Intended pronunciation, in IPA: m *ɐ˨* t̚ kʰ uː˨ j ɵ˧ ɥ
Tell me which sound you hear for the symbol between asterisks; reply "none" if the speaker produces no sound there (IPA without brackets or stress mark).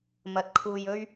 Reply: ɐ˨